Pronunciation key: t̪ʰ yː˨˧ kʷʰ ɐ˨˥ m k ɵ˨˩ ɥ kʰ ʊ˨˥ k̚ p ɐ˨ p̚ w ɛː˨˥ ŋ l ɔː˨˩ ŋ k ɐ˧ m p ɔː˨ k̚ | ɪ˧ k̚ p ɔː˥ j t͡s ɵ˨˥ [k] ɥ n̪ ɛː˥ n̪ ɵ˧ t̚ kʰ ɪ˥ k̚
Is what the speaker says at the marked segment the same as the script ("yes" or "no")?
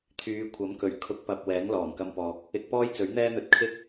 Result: no